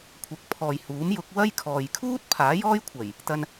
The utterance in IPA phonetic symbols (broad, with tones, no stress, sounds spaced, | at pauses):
kʷʰ ɐ˨˥ k̚ pʰ ɔː˨ j h uː˨˥ m j ʊ˨˥ k̚ w ɐ˥ j kʰ ɔː˨ j kʰ uː˥ t̚ pʰ aː˨˥ j ɔː˥ j kʷʰ ɐ˨˩ j | t̪ ɐ˧ n